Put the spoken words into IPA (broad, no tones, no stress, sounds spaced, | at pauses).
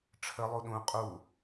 ʈ͡ʂʰ ə lˠ u ɗ ũ qʼ u